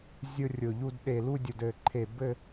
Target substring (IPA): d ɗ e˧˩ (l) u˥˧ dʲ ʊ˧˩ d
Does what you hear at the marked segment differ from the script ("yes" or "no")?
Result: no